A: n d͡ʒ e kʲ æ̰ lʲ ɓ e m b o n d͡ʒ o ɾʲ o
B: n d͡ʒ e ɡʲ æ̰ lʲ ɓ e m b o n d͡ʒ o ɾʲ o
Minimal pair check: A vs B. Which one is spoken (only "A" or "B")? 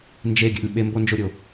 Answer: B